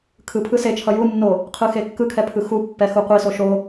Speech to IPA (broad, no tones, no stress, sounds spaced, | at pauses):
kʰ ɯ pʰ ɯ s e t͡ʃʰ ʌ j u nː o | qʰ ɯ x e kː ɯ kʰ ɛ pʰ ɯ x u pː ɛ x u qʷ i s o ʃ o